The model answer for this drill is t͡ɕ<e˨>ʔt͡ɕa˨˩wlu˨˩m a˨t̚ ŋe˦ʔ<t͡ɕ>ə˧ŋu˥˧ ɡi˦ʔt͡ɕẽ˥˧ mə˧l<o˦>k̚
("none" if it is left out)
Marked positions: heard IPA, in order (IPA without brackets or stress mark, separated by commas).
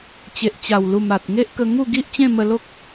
e˨, k, o˦